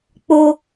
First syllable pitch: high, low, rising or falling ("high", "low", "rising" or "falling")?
high